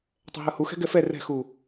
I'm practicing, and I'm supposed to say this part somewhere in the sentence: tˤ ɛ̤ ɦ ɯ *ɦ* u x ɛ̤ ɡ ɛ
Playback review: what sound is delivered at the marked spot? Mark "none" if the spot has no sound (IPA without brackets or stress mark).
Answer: h